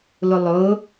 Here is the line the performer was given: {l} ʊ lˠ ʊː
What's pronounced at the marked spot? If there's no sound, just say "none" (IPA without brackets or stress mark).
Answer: l